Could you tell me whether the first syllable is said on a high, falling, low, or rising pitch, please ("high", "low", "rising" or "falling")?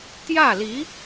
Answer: falling